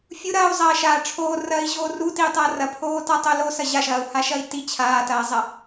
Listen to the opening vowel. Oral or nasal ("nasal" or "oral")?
oral